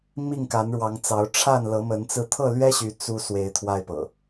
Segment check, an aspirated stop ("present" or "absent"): present